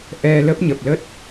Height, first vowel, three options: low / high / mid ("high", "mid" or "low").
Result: mid